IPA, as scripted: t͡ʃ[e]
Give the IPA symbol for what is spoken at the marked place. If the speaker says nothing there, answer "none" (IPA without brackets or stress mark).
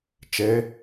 e